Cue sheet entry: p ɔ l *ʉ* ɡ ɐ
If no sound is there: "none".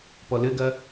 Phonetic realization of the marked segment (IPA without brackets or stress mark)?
ɘ